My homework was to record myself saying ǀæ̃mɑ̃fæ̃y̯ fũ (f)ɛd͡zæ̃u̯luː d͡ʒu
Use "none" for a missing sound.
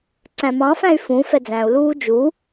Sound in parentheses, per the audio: f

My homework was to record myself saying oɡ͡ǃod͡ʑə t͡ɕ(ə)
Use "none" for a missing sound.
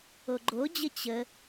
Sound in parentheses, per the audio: ə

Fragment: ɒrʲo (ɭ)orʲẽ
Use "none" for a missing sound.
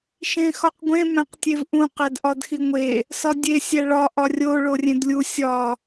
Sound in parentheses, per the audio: ɭ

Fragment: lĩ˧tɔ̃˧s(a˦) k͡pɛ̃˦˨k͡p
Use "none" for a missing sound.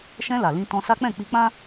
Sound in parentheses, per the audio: a˦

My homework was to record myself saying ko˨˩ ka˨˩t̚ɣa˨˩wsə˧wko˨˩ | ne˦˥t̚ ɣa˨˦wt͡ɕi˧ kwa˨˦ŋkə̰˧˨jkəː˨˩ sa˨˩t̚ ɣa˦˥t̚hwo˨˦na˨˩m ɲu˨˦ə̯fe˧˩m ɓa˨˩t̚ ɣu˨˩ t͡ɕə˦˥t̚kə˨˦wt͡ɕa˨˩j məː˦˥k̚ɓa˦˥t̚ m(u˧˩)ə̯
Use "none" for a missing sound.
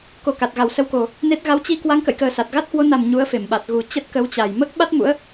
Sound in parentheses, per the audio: ṵ˧˥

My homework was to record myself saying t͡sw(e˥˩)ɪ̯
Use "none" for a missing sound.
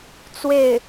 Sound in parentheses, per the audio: e˥˩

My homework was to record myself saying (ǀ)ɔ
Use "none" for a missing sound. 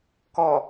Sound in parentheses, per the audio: k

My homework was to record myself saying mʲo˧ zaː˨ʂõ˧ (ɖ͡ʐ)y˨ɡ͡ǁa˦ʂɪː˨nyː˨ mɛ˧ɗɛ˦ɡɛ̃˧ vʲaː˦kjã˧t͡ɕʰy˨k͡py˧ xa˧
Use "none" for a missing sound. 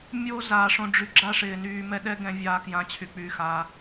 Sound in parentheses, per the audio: ɖ͡ʐ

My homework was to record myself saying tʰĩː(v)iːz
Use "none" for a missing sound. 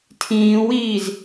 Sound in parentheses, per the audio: w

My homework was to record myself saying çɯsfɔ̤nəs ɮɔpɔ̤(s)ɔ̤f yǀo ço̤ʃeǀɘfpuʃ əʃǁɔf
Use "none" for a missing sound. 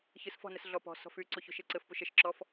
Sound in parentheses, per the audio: s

